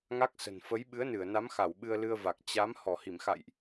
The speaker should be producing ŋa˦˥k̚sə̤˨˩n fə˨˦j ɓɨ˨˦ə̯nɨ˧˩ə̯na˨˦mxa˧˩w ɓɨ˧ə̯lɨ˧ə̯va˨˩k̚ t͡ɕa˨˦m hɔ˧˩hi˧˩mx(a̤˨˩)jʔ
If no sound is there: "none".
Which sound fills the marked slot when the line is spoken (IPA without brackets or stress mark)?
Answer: a̰˧˨